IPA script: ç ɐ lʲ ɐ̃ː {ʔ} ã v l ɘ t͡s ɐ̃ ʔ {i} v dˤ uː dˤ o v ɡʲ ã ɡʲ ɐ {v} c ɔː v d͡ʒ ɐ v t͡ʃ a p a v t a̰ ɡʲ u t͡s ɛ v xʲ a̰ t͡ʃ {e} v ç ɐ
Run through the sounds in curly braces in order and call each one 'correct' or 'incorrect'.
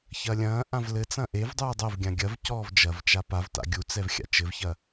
correct, incorrect, correct, incorrect

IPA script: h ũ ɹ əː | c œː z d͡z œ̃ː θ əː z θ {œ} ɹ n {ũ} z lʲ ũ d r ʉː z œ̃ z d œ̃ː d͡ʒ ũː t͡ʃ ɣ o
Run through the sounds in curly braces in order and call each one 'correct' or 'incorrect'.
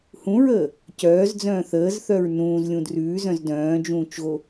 correct, incorrect

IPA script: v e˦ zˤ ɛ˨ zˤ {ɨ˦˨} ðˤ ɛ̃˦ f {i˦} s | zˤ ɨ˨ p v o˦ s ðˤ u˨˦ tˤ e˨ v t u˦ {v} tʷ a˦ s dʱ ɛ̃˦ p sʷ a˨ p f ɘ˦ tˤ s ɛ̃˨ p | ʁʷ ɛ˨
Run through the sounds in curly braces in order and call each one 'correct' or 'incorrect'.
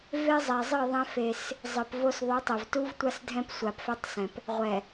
correct, incorrect, correct

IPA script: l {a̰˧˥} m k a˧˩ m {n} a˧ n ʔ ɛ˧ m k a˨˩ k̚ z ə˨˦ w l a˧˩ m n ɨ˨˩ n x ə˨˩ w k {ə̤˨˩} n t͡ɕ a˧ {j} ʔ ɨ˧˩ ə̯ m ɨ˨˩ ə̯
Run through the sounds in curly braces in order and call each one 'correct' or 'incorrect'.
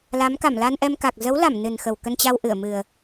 incorrect, incorrect, incorrect, incorrect

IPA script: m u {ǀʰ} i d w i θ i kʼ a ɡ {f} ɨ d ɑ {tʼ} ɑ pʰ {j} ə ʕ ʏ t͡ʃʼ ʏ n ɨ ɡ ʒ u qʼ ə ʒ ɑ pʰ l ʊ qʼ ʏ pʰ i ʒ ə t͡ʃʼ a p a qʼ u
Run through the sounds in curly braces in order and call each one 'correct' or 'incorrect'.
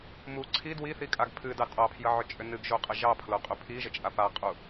correct, incorrect, correct, correct

